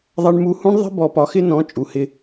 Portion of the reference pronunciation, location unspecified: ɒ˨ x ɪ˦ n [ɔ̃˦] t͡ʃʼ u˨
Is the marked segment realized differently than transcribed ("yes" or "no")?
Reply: yes